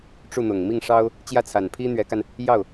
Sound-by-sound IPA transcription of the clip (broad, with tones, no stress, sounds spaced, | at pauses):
ʈ͡ʂ u˥˩ n̪ ʊ˨˩ ŋ m i˥˩ ŋ ʂ ɑ˥ ʊ̯ | t͡ɕ j ä˥˩ t͡sʰ a˨˩ n pʰ i˥ n̪ ɥ ɛ˧˥ k a˧ n | j ɑ˥˩ ʊ̯